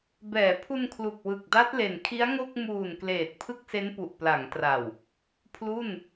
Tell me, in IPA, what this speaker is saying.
b ɛː˩˦ pʰ u˧ n kʰ l u˨˩ k̚ w ɯ˨˩ k̚ d a˦˥ t̚ l e˨˩ n kʰ i˦˥ a̯ ŋ o˥˩ k̚ m uː˨˩ n k l eː˨˩ t̚ pʰ ɯ˦˥ k̚ s e˦˥ n p u˨˩ ʔ p l a˩˦ ŋ t r a˨˩ w | pʰ l u˥˩ n

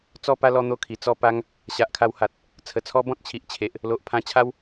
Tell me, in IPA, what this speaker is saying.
t͡s ɔ˥˧ p a˦ l ɔ˦ n̪ o˦ kʰ i˨˩ t͡s ɔ˥˧ p a˦ ŋ | ɕ a˨ ʔ kʰ a˧ w h a˨ t̚ | t͡sʰ ə˨˩ t͡sʰ ɔ˦ b ɔ̃˦ t̚ t͡ɕʰ i˨ ʔ t͡ɕʰ e˨ ʔ | l o˨ ʔ pʰ ã˧ t͡ɕʰ a˦ w

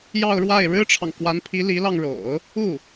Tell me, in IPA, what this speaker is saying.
j ɑ˥˧ ʊ̯ ɻ w a˥˩ ɪ̯ ɻ ɻ̩˥ ʈ͡ʂʰ ɑ˨ ŋ k w a˧˥ n pʰ i˧˥ l i˧˥ l ɑ˧ ŋ ɻ o̰˨˩˦ ʊ̯ | u˥˩

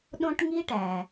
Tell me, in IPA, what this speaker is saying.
ɗ õ˥ ʈ ŋ i˥ ʈ æ˩

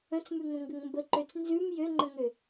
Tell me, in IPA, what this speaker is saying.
ə̃ t͡s m ʉ ŋ õ ŋ ɡ ə ŋ m b ə ǃ ø t͡s n z ʉ m j ø ŋ͡ǃ ə̃ ŋ ø

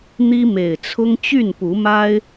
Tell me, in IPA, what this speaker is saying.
n̪ i˦ m e˨˩ ɪ̯ t͡sʰ ʊ˦ ŋ t͡ɕ y˥˨ n p u˨˦ m a˦ ɪ̯

